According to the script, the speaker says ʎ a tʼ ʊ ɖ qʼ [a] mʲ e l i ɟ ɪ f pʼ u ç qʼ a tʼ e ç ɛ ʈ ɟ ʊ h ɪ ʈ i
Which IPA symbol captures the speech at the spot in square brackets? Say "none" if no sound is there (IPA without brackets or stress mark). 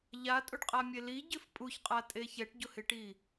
a